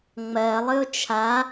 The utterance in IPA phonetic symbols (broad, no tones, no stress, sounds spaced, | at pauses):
ŋ͡m ɜ lˠ ɨ ʊ̯ t͡ʃʰ a